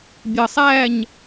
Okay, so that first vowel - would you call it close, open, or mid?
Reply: mid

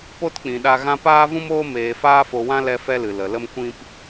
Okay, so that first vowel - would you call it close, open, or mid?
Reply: mid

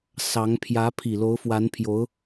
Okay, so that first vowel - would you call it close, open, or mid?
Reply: open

